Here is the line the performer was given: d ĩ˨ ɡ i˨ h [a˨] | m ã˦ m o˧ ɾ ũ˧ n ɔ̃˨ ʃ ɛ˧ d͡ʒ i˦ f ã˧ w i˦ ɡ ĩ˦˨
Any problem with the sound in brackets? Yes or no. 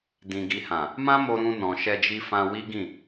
yes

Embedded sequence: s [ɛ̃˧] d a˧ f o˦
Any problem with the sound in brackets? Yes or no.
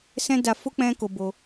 yes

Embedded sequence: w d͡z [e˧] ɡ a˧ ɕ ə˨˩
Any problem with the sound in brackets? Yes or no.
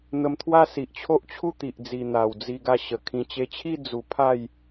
yes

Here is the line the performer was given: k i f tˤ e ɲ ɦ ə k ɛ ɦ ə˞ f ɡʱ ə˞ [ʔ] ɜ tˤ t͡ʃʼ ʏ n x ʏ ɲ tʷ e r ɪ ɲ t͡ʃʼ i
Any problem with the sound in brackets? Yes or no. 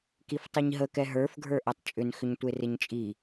no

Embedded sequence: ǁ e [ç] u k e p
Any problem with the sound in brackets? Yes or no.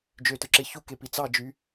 no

